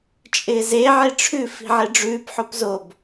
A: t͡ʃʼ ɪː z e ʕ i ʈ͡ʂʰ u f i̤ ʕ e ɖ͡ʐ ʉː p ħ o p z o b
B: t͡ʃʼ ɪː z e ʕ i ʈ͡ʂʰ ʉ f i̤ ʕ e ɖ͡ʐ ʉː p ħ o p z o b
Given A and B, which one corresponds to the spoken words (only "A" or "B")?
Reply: B